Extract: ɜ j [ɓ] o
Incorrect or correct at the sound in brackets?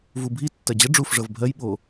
correct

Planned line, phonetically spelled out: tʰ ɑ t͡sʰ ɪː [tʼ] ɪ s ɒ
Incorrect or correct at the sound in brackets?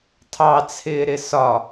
incorrect: ɾ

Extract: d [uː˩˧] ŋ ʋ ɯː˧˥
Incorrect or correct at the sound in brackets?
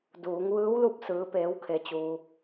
correct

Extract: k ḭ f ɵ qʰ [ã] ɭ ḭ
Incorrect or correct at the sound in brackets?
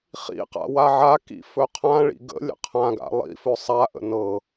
correct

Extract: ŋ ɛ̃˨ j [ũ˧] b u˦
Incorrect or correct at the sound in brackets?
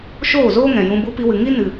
correct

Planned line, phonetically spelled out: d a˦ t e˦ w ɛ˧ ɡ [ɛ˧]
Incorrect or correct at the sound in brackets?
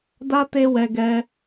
correct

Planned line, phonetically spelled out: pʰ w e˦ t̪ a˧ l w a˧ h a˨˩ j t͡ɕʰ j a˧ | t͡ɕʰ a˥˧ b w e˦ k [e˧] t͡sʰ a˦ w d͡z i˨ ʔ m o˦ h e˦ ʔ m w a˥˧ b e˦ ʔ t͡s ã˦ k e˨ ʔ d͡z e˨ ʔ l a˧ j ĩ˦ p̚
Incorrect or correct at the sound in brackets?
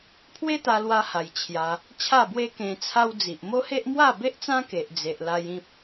incorrect: ẽ˧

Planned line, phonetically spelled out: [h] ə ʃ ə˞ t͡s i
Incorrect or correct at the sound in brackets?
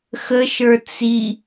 incorrect: x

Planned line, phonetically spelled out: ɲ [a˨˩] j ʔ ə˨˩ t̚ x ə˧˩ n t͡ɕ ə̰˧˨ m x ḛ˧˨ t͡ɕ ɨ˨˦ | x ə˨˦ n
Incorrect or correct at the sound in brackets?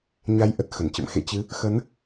incorrect: a˨˦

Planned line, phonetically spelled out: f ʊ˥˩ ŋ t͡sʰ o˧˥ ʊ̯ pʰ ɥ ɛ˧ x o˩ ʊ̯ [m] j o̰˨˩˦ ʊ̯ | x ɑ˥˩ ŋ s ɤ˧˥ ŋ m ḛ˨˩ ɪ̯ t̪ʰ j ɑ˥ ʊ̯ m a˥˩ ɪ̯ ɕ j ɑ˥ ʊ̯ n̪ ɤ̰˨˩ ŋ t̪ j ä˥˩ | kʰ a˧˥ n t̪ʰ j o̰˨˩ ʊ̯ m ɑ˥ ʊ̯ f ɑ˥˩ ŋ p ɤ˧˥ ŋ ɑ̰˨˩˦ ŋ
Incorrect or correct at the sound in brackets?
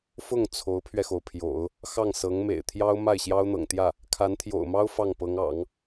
incorrect: pʰ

